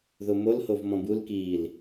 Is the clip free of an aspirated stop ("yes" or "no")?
yes